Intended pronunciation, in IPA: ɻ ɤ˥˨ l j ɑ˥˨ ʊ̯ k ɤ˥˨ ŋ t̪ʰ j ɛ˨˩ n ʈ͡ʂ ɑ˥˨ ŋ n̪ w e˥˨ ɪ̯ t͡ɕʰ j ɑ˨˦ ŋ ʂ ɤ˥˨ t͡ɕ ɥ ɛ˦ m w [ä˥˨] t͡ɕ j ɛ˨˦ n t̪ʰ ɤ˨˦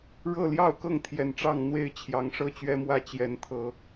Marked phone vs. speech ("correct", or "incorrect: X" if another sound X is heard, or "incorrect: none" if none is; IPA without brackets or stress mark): correct